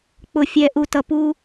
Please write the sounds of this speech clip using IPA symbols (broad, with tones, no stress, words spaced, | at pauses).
k͡pʊ˨fʲɛ˨ ʔu˨tʌ˨ pu˦